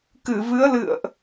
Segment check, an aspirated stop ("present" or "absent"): absent